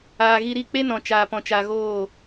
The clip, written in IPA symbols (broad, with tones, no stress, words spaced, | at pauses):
aː˨ ɣi˧ɾi˦˨ k͡pe˦nɔ̃˨ t͡ʃaː˨pɔ̃˨t͡ʃa˨ ɣoː˦˨